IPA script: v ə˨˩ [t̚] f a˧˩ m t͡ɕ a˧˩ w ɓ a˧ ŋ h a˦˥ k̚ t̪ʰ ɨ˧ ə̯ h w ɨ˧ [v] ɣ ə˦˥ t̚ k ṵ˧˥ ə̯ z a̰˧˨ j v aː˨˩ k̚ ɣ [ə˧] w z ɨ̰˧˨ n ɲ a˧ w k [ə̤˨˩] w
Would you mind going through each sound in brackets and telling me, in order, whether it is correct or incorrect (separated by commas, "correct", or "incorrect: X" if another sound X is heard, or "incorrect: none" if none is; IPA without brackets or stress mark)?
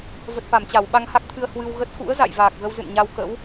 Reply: correct, incorrect: w, correct, incorrect: ə̰˧˥